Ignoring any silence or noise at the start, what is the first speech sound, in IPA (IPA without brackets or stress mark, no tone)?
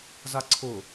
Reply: z